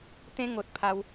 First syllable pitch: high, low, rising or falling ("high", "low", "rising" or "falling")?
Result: high